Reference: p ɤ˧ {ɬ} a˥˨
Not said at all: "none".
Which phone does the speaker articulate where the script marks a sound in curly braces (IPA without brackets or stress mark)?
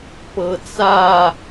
t͡s